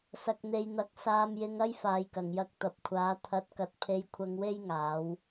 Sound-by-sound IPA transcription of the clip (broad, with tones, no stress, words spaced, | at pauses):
sɐ˨k̚n̪e˨jn̪ɐ˨˥k̚ saː˧mjɪ˧ŋɐ˥j faː˨jkɐ˨˩ŋjɐ˧k̚ t̪ɐ˨p̚kʷʰaː˨˥ t̪ʰɐ˨˥t̚kɐ˨t̚ pʰe˧jkʷʰɐ˧ŋwe˥j ŋaː˨˥w